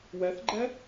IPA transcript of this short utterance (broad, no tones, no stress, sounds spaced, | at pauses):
w ɛ θ ɡ͡ǃ ɛ